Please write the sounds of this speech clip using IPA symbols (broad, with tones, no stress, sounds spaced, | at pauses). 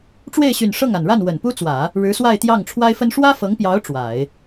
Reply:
ʈ͡ʂ w e˥˩ ɪ̯ ɕ y˨˩ n ʂ ɤ˥˩ ŋ a˨˩ n ɻ a˥˩ n w ə˨˩ n p u˥ t͡s w ä˨˩˦ | ɻ ɻ̩˧˥ s w a˥˧ ɪ̯ t̪ j ɑ˥˩ ŋ ʈ͡ʂʰ w a˥ ɪ̯ f ə˥ n ʂ w ä˥ f ɤ˧˥ ŋ p j ɑ˧˥ ʊ̯ ʈ͡ʂ w a˨˩˦ ɪ̯